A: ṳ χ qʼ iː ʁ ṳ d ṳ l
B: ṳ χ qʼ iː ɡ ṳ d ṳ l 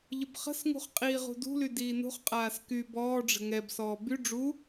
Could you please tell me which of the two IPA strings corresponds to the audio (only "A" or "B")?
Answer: A